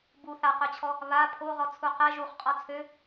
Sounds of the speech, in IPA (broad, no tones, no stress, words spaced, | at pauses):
bu θaqœt͡ɕʰɔ | βa pʰoʁɔt͡sʰu qɛ ʒuχqʼɔ t͡sʰø